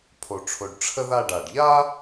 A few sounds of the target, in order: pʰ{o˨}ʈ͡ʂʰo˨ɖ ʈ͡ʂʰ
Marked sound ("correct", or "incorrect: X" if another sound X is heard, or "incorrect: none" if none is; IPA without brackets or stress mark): correct